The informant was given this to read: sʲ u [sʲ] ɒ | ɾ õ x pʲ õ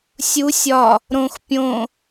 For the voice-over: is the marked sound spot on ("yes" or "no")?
yes